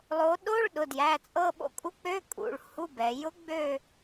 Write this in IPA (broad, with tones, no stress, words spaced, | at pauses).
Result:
lˠo˩˧ɗo˧˥˧ɭ ɗʊ˩˧˩djæ˩˧˩t͡sʼɤ˦˨ɓo̰˧˥ kʼu˧˥k͡pø˧˥˧kʼṵ˩˧˩ɭ hu˧˥˧bɛ˩˧ jʊ˧˥ɡ͡bø˦˨